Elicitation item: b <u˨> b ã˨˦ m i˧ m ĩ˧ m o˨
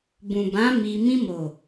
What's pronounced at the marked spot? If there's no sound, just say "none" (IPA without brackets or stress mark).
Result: ũ˨